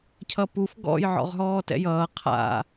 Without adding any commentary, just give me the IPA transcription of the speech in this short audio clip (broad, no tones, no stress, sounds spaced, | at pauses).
cʰ ʌ p u f ɡ ɔ̰ j ʕ ɔ̰ ʁ ɦ ɔː t ɛ̰ j ʌː qʰ a̰